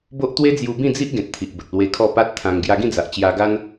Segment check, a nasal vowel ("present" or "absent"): present